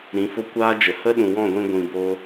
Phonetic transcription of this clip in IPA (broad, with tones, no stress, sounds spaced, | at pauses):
ɾ ĩ˨˦ f o˦ kʷ aː˦ d͡ʒ ə˨ h ə˦ ɗ ũ˨ w ɔ̃˦˨ ɡʷ ĩ˧ ɡʷ ĩ˧ b oː˦